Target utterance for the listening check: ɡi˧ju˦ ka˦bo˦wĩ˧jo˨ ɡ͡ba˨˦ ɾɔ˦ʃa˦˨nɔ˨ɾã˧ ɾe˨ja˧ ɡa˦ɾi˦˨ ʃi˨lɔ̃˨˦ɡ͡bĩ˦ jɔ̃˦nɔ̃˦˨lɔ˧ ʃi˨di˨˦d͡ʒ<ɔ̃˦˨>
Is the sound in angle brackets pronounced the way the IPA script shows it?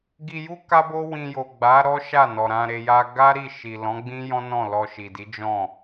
yes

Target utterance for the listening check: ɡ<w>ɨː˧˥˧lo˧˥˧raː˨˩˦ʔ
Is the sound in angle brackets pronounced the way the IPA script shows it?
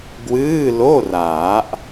yes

